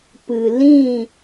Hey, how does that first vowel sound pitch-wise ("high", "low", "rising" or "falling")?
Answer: low